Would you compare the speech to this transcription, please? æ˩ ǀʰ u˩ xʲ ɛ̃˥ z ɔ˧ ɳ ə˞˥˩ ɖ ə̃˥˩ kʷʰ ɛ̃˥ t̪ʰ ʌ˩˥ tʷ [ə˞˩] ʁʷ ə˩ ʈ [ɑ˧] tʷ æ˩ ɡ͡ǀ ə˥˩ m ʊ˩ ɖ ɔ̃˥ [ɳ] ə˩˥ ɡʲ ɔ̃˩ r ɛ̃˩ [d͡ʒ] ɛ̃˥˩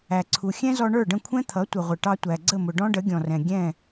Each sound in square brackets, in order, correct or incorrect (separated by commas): incorrect, correct, incorrect, incorrect